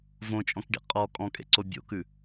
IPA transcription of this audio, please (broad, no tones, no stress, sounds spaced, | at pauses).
v õ t͡ʃʼ ɔ̃ k ɖ ḭ qʼ ɔ kʼ ɔ̃ kʼ ḛ ǀ o bʲ o̰ k ʉ